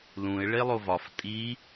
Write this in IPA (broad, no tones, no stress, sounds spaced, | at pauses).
l ũ ɪ̯ ɭ e lˠ o v ɒ f tʼ i